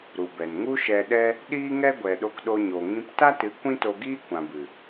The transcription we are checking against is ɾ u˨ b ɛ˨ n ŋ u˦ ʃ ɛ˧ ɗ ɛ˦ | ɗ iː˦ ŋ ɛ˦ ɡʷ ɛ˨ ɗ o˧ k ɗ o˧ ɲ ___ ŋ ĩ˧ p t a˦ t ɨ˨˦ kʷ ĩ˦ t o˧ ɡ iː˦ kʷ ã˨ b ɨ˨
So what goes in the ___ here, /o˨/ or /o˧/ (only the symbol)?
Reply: o˨